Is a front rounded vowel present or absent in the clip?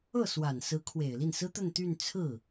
present